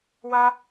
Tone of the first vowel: high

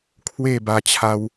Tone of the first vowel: falling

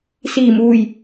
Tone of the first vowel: low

